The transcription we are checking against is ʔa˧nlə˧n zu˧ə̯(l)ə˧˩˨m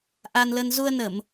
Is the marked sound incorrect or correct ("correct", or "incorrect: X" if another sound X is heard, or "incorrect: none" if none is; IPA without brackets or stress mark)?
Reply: incorrect: n